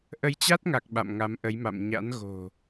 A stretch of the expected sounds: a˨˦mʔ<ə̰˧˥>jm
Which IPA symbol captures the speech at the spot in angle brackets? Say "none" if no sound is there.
ə˨˦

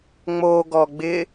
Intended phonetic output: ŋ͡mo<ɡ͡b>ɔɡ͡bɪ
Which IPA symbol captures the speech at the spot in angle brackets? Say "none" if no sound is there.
ɡ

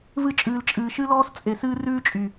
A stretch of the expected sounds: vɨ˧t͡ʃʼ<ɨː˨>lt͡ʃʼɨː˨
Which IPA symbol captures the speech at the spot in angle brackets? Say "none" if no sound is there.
ɨː˨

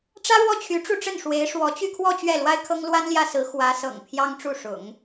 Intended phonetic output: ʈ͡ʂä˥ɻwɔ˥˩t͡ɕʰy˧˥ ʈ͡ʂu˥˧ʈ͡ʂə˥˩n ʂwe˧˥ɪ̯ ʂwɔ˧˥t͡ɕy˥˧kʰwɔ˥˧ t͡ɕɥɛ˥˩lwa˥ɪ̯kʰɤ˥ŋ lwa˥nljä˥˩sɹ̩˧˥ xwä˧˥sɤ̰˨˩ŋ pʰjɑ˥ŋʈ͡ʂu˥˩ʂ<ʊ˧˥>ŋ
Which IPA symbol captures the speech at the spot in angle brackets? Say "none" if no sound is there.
ʊ̰˨˩˦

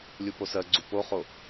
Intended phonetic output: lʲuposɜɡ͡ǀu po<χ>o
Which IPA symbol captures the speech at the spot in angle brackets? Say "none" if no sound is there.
χ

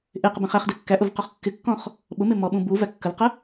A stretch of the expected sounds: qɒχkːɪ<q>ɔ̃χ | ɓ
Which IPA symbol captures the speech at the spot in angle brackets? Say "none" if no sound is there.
kː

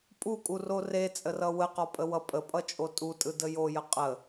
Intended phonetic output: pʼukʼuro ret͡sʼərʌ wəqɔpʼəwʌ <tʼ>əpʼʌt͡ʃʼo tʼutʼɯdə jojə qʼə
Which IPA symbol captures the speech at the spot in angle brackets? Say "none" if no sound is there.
pʼ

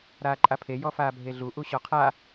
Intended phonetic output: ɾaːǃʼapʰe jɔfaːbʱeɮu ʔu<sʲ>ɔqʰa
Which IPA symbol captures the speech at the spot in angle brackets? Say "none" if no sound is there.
ɕ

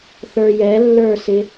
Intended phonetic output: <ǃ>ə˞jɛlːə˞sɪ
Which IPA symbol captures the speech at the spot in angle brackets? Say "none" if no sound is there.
θ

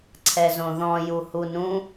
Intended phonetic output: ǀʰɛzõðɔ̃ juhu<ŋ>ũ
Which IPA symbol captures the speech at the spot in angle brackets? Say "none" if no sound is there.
n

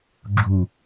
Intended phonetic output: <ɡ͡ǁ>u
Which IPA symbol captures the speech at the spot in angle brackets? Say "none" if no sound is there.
ɡ͡ǁ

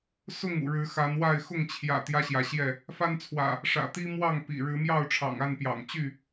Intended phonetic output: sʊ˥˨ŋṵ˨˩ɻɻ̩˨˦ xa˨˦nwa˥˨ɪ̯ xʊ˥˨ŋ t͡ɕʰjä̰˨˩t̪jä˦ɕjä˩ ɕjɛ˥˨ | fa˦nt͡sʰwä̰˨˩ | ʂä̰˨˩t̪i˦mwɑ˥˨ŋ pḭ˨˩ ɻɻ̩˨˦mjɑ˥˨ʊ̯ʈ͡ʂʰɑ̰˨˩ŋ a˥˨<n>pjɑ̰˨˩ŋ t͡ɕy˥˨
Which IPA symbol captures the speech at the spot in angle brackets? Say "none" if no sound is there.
n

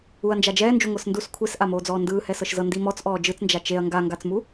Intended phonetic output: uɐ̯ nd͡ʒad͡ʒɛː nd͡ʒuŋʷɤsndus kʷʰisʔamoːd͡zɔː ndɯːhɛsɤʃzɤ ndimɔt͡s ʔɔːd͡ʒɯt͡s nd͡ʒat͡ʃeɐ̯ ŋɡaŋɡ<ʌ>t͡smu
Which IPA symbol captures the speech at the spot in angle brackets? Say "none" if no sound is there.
a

